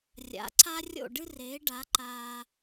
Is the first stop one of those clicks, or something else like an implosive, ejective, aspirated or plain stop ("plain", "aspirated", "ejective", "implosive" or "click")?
click